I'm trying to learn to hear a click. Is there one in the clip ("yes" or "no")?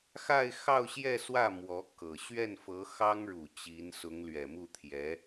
no